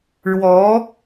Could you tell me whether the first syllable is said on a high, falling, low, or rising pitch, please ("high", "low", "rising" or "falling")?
rising